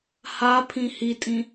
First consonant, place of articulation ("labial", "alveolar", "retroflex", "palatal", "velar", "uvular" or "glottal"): glottal